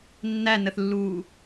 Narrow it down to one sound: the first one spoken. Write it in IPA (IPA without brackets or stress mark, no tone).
nː